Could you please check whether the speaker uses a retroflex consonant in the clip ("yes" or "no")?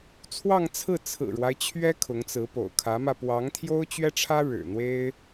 yes